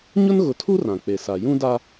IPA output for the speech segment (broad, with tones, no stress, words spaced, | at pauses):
ɲʊ˦nɣʊ˨tʰu˦ rã˨k͡pe˨sa˨ jũ˦da˦